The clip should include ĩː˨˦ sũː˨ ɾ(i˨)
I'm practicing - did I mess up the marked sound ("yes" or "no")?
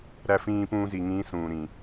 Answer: yes